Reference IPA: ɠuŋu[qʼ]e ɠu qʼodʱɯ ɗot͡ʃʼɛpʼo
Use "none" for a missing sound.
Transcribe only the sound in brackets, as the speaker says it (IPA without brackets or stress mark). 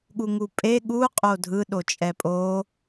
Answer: pʼ